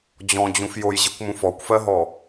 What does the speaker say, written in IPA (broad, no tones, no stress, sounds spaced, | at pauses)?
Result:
d͡ʑ ɔ̃ d͡ʑ ũ f j o j ʑ i kʷ m ũ f ɔ kʷ f ɜ ɦ ɔ